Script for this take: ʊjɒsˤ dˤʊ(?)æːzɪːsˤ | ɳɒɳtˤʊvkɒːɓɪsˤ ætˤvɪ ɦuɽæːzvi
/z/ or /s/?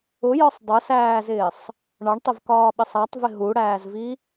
s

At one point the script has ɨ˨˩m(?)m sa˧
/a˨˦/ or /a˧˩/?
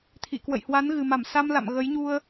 a˧˩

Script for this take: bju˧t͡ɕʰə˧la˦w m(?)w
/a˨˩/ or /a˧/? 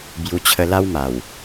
a˨˩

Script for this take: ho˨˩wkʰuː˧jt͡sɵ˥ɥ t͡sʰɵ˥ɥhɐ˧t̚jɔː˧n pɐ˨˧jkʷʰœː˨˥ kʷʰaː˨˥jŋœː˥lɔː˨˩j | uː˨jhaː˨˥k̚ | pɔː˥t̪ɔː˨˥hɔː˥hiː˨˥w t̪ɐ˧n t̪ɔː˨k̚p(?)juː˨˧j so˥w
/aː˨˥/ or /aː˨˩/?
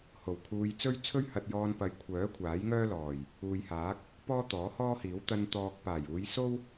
aː˨˩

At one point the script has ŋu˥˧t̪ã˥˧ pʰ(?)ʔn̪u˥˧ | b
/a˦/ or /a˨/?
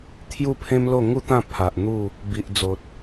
a˨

